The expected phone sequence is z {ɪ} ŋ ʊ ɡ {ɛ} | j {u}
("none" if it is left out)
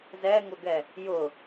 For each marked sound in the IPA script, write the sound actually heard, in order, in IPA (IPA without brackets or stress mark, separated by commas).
ɛ, ɛ, ʊ